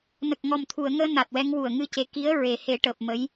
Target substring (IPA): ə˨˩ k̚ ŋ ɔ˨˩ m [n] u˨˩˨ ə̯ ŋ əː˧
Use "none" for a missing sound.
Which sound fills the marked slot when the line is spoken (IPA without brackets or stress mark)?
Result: t̪ʰ